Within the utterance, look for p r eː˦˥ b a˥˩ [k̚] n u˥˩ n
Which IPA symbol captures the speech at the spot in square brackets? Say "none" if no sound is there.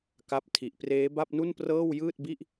p̚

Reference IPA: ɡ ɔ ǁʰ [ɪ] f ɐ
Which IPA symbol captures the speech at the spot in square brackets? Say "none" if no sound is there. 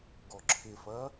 ɪ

